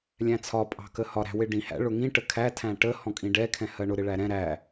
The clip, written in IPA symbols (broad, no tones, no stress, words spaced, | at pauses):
lʲæ̃t͡sʰɒ pʼɑ̤kəhɒ ɾæ̤wɪɖĩ hæ̰ ɭʊŋĩ ʈəkʰæ tʰæ̃ʈə hɔ̃kʼĩɖɛ kʰɛ̃hɜɳʊ ɾɪɭæɾɛ̃ ɾæ